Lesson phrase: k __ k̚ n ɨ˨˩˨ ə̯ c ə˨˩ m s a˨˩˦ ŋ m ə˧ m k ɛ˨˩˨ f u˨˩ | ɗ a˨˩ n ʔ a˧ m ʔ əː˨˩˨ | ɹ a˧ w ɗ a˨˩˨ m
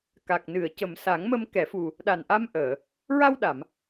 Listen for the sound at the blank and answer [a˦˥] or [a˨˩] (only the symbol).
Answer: a˨˩